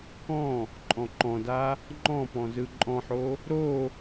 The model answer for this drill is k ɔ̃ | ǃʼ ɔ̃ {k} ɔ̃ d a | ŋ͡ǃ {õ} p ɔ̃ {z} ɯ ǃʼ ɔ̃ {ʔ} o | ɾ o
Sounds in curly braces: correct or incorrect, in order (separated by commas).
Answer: incorrect, incorrect, correct, incorrect